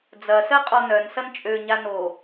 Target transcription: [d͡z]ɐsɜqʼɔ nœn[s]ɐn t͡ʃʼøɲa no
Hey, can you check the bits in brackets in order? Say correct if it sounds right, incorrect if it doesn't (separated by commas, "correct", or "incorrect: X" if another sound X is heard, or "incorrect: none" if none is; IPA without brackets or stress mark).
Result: correct, correct